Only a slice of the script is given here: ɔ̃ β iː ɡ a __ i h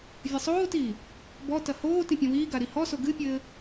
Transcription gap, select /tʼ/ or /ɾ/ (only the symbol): ɾ